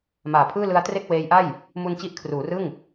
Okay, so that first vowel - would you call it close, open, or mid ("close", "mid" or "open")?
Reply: open